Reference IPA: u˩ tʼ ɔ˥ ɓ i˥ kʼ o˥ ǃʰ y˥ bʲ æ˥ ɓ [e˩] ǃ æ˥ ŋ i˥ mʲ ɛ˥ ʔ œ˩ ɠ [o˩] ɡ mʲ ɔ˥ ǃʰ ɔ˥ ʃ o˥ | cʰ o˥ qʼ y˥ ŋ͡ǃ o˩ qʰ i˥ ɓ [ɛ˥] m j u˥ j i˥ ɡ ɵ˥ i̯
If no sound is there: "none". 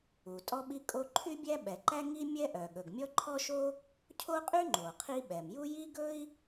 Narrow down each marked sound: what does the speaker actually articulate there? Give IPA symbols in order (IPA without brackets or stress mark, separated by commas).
ɛ˩, ɵ˩, ɛ˩